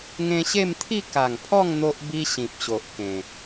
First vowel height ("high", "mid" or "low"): mid